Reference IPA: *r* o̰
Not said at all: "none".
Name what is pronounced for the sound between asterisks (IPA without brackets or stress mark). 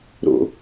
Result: ɾ